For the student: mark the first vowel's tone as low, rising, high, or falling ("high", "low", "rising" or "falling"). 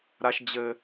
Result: low